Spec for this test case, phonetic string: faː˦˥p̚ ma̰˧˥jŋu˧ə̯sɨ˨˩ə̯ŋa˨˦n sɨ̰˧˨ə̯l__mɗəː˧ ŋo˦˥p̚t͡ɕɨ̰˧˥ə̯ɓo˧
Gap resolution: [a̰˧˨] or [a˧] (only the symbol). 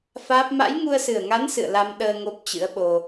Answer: a˧